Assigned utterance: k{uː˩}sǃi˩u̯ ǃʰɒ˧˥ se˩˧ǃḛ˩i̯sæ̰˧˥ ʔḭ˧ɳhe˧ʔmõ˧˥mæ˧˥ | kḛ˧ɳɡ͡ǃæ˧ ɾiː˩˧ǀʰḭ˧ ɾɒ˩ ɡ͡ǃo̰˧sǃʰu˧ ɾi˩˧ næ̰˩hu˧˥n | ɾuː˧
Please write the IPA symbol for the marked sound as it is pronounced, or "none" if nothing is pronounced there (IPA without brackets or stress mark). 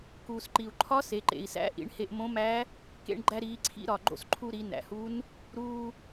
uː˩